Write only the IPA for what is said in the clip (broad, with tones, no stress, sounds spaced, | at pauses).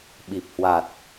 ɓ i˨˩ p̚ h w a˨˩ t̚